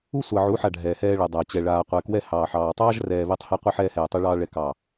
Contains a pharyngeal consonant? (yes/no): yes